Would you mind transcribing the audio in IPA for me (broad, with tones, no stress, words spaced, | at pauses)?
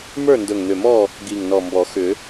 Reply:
mə˞˥˨ndɵ˨˩ŋn̪ʏ˨˩mɔ˥˨ | ɡi˨˩ŋnɔ˨˩ mbɔ˨˩˦ xʏ˨˩˦